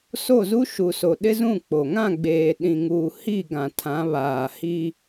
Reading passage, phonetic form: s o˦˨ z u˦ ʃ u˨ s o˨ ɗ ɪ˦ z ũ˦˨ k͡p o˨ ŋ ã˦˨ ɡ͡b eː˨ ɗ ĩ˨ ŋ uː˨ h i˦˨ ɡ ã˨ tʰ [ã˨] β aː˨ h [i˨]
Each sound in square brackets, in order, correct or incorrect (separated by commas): incorrect, incorrect